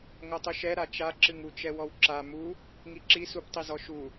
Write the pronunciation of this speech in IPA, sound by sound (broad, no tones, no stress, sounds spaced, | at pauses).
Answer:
ŋ o tˤ u ʃ ɛ ɾ a t͡ʃ a ǁ ɨ ŋ u t͡ʃ ɛ w ɔ w ǁ a m u | ŋ i ǁ i s u p tˤ i z ɔ ʃ u